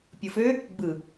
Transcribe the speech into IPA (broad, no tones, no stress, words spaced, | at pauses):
pʲɯfø | ɡ͡bɯ